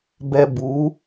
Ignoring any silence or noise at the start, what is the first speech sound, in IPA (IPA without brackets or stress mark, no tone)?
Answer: b